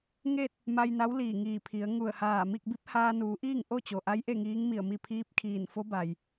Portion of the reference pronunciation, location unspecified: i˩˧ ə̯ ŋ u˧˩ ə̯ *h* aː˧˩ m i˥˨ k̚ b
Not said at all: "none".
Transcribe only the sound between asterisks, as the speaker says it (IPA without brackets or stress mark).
h